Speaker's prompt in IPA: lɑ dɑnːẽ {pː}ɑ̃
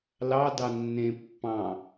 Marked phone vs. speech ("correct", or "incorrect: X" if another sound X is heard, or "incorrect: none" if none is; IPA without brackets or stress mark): correct